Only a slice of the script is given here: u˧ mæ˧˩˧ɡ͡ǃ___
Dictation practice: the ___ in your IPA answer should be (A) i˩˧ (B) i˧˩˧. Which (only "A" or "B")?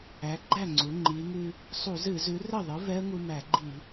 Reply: B